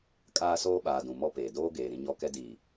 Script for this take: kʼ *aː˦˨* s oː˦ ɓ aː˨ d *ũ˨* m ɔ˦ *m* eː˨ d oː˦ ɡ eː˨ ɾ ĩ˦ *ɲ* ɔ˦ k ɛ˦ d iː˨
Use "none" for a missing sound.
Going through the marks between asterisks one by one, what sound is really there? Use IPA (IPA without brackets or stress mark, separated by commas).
aː˦, ũ˨, p, ɲ